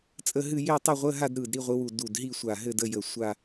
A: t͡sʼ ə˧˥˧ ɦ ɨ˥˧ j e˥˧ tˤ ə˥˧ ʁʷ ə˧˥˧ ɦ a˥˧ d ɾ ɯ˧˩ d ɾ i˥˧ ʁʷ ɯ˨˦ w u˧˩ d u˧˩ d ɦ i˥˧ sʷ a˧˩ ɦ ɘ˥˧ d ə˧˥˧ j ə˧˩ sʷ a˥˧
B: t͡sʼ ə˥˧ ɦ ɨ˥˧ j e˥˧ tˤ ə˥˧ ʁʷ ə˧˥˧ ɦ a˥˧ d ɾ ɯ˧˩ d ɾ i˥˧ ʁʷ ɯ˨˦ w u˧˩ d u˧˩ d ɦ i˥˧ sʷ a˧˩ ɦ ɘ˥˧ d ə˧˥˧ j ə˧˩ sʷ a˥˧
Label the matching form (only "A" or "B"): B